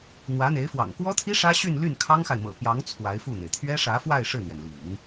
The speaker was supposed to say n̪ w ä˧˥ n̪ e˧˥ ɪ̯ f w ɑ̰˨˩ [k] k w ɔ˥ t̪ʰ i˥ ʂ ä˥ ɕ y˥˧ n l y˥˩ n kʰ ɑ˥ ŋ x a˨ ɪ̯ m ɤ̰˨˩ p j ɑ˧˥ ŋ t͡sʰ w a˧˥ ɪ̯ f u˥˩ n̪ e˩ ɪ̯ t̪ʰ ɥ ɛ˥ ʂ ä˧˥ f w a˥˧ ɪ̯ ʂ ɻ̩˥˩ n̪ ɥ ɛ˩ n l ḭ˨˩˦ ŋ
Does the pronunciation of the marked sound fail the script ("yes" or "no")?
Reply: yes